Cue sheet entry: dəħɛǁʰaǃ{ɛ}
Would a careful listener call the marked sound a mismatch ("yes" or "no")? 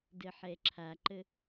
yes